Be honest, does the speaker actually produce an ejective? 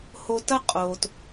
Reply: yes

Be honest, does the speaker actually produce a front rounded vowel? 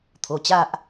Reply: no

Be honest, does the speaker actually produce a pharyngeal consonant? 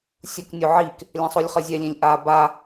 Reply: yes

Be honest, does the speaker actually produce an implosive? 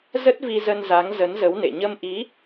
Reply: no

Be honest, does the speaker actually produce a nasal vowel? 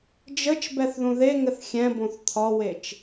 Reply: yes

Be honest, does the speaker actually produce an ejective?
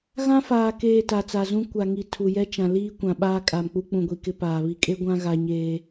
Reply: yes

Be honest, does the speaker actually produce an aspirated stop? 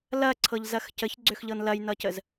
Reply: yes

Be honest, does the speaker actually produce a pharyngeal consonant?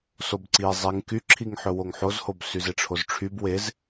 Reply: yes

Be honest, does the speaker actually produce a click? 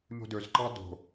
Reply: yes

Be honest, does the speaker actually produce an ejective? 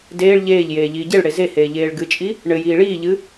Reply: yes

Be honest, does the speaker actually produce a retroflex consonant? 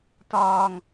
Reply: no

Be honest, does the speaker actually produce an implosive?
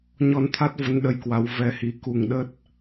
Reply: yes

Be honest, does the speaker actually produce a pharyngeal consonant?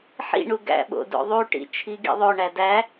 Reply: yes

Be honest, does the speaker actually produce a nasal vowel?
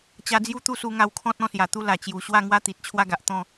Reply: yes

